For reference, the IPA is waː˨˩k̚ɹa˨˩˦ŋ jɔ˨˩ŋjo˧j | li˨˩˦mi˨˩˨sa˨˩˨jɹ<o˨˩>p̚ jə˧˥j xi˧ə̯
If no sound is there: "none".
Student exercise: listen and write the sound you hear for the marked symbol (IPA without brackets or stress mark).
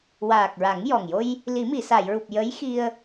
u˨˩